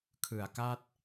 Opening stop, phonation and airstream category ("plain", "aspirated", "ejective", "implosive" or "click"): aspirated